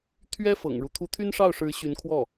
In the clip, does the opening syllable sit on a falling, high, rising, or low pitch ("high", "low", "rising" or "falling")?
high